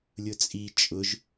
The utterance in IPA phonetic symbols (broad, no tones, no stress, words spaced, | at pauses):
lʲʊt͡sʼi t͡ʃʼʊʒ